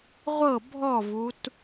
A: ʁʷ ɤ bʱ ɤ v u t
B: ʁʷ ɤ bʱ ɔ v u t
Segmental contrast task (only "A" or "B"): B